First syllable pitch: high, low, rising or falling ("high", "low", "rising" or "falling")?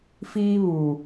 high